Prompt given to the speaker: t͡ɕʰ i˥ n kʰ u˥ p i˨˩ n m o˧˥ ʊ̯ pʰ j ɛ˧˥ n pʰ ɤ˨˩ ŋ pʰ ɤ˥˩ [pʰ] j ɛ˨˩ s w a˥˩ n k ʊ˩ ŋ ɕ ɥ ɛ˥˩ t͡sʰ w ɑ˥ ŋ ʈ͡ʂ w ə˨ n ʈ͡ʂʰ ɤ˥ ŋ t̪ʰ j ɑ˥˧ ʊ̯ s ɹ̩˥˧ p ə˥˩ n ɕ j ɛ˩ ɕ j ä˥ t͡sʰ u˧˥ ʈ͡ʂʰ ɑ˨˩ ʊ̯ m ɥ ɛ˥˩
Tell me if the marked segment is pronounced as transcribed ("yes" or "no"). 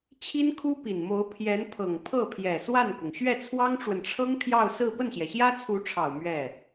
yes